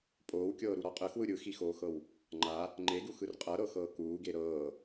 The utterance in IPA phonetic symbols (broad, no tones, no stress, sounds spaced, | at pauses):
pʼ oː w kʲ ɤː ɾ u ɾ ɔ qʼ ɯ x w ɯ ɾʲ ɯ x i x oː x ɤ w | ŋ͡ǃ a | ŋ͡ǃ e ɡ u x ɯ r qʼ ɤ ɾ ɤ x ɤː k uː ɡ e ɾ ɤː